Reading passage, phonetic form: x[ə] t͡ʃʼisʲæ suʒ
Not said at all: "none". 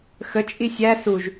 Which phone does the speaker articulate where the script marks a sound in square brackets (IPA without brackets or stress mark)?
ə